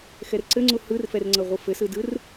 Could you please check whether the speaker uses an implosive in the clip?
no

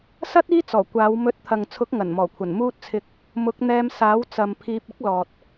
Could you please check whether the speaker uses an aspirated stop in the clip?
yes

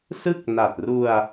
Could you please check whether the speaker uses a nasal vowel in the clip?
no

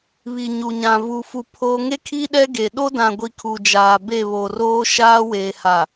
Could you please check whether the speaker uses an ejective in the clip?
no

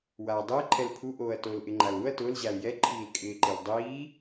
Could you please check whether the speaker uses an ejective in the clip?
yes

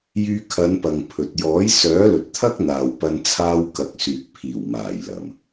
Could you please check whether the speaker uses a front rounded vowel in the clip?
yes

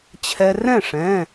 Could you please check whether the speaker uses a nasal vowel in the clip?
yes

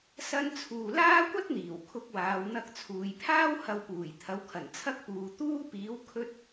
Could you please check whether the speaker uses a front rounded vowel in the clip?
no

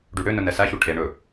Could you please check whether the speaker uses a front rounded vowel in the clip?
yes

